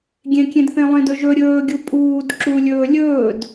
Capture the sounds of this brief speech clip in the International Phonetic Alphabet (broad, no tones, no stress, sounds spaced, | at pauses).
ɡʲ ẽ kʲ ẽ d θ ẽ lˠ ẽ d ɵ ʒ ɵ ɾʲ ɵː ɡʲ u pʼ uː d ǁ u lʲ ɵː lʲ ɵː d